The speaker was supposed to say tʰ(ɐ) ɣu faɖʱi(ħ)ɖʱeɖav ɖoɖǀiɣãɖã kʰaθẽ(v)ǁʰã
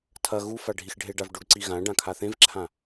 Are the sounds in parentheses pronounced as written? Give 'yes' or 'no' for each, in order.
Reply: yes, no, yes

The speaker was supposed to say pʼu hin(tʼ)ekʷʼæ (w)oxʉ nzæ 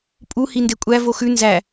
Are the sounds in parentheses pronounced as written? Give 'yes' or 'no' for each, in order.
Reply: no, no

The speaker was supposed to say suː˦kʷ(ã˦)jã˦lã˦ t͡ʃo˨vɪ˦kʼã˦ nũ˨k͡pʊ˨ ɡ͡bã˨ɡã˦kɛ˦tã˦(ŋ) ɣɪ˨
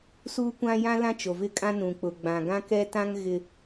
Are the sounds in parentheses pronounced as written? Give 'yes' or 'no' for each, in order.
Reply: yes, yes

